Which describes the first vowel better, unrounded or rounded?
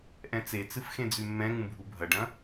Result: unrounded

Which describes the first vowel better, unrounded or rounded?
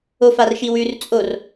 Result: rounded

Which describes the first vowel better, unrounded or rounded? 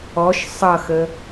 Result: rounded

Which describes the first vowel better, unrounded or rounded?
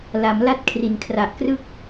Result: unrounded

